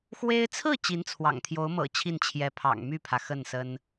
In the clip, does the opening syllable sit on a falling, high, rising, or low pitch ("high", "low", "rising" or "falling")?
high